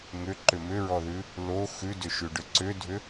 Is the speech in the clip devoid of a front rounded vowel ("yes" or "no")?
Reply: no